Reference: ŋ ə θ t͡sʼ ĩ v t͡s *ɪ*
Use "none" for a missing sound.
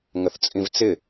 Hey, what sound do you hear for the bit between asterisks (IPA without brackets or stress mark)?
ɪ